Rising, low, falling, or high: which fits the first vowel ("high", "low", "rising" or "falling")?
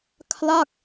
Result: falling